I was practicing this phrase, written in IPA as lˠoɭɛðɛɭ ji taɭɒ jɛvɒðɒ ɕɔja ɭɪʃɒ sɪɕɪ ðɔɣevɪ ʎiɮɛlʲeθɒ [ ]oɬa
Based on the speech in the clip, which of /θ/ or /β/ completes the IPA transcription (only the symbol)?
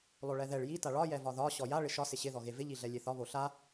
β